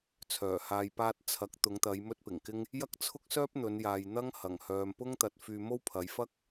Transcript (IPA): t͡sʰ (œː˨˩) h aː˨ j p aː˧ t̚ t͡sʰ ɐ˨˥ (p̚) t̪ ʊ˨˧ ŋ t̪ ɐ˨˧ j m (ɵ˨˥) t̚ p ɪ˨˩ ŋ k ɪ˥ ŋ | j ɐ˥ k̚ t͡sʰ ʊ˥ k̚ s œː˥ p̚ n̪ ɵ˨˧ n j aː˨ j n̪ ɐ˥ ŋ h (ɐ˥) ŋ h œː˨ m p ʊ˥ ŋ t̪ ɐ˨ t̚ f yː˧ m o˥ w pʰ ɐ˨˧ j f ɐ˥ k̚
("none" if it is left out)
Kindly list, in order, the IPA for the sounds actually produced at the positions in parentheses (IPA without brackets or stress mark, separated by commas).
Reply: œː˨˩, k̚, ɵ˥, ɐ˨˩